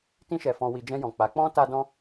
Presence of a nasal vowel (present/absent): present